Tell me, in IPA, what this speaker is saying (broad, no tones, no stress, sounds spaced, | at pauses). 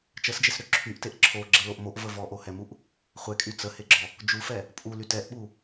t͡ʃ ə s d͡ʒ e s ɾ ø ǁʰ y ʔ t e ʔ ǁʰ o ɡ͡ǁ ə l o ʔ m o ʔ v ə v ɔ ʔ o h ɛ m u ʔ | χʷ ɛ kʼ y t͡s ə h e ɡ͡ǁ ɔ | d͡ʒ u f ɛ | pʼ u l y t ɛ ʔ ɓ u